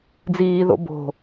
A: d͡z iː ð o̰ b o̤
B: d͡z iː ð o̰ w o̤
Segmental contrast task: A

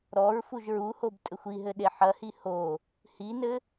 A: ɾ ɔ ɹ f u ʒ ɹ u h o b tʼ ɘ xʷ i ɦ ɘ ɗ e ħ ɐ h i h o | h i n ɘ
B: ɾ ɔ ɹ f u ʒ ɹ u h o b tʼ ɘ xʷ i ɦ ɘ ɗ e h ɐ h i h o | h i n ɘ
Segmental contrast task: A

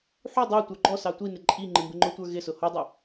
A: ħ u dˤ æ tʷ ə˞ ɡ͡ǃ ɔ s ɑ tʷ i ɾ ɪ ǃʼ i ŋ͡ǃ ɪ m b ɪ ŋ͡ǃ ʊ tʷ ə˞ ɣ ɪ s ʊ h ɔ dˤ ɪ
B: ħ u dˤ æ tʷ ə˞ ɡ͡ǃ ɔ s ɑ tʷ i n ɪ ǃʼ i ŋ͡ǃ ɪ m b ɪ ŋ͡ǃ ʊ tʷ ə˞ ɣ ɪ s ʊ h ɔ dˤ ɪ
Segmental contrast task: B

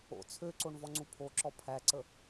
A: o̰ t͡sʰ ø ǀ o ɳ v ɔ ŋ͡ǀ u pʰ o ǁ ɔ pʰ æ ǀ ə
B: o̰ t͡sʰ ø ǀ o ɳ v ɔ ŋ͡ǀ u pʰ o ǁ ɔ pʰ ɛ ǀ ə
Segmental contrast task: A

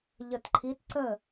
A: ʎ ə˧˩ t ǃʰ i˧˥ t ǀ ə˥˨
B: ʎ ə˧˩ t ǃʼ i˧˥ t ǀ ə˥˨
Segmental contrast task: A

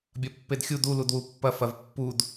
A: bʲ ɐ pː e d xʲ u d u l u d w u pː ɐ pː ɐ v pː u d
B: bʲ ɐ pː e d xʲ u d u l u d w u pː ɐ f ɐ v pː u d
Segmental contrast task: B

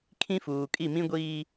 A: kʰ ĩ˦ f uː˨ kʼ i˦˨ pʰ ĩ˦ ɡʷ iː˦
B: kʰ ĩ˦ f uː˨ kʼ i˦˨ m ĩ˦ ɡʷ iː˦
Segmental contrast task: B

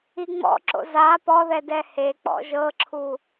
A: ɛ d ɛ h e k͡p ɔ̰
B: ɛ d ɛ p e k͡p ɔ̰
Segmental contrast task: A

